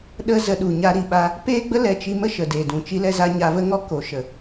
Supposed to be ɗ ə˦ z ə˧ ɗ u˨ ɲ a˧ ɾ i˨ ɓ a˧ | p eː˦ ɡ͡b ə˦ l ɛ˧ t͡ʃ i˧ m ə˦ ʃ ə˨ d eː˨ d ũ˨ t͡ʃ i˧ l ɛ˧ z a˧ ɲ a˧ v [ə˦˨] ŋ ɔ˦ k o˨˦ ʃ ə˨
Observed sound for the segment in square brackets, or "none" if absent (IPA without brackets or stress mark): ə˦